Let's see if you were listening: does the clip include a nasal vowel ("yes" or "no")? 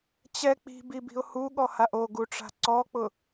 no